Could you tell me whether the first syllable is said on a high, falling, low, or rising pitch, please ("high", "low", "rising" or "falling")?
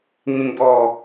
low